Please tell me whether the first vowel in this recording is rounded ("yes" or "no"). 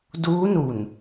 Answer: yes